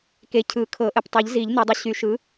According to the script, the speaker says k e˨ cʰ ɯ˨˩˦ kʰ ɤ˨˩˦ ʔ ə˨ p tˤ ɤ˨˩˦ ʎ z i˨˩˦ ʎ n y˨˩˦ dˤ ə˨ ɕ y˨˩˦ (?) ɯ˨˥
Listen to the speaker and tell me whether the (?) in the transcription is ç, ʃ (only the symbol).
ʃ